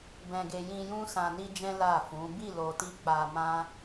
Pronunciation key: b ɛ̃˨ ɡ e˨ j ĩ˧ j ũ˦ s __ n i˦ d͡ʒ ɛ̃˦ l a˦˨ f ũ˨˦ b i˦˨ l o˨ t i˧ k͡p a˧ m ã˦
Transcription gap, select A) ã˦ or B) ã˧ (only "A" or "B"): B